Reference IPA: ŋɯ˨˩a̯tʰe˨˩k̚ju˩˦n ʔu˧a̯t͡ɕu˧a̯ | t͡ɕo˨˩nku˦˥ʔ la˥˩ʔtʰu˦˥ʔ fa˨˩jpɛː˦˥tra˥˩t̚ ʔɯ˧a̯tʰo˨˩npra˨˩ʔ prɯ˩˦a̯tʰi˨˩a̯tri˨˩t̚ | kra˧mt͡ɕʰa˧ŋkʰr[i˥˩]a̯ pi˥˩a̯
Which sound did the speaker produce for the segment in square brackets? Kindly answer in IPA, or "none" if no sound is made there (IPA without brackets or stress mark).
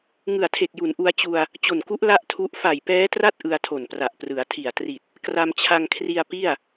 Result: i˧